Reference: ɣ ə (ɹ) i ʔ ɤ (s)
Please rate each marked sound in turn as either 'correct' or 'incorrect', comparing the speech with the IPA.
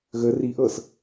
incorrect, correct

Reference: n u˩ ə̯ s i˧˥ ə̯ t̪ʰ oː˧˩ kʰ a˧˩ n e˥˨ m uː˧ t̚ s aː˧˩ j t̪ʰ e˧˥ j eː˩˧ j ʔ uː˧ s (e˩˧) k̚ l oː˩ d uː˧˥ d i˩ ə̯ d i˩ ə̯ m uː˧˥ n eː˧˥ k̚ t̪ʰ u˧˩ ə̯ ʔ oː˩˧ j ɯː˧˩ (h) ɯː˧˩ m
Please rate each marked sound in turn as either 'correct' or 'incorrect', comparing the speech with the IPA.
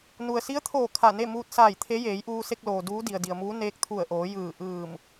incorrect, incorrect

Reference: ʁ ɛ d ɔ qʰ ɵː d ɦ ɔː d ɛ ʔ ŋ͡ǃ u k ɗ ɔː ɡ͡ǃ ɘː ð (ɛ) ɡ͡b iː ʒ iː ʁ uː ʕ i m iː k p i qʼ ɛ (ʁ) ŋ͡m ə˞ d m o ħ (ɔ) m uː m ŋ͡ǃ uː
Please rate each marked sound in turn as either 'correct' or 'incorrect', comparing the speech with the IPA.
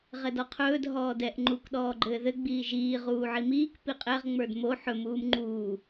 incorrect, correct, incorrect

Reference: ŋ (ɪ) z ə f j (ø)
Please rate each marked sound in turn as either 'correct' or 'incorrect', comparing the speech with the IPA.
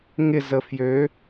correct, correct

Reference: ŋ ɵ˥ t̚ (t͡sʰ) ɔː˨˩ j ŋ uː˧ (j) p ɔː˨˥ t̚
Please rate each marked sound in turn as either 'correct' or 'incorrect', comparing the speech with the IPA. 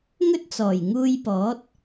incorrect, correct

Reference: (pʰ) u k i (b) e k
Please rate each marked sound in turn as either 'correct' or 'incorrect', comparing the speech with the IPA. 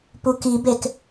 incorrect, correct

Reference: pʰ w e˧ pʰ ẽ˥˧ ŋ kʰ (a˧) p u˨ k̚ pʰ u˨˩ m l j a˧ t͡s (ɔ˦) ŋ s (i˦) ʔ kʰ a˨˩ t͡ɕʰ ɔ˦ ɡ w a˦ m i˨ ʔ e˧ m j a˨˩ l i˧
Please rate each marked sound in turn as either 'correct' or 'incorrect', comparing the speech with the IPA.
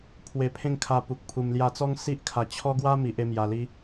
correct, correct, correct

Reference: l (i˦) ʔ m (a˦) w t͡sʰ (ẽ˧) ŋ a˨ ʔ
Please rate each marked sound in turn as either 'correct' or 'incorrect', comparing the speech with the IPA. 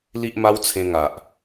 correct, correct, correct

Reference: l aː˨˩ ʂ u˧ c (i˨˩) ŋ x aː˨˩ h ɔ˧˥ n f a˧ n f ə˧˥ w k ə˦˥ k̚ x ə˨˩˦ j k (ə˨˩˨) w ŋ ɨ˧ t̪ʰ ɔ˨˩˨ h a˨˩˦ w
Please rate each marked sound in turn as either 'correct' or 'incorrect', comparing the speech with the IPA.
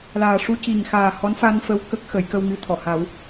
correct, incorrect

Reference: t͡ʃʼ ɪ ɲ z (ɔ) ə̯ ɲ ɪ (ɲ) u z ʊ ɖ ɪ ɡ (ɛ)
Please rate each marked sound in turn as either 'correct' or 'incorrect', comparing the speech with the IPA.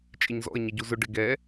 incorrect, incorrect, correct

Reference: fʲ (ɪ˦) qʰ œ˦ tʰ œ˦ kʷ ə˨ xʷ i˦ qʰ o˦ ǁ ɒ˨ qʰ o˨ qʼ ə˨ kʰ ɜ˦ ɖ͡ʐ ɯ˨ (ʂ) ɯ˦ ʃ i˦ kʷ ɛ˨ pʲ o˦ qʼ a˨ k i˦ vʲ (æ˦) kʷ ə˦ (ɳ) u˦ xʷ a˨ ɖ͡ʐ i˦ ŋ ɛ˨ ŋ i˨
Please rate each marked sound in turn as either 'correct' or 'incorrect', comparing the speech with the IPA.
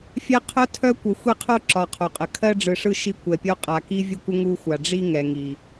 incorrect, correct, incorrect, incorrect

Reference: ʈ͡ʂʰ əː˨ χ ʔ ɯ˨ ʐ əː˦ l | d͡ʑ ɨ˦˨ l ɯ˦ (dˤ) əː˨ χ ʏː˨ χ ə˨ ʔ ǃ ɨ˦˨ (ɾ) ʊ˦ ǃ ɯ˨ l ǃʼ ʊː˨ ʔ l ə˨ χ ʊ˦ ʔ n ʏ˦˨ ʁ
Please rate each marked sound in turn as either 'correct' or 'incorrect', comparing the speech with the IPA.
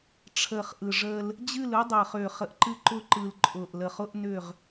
correct, incorrect

